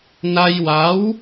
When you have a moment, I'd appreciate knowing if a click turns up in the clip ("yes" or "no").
no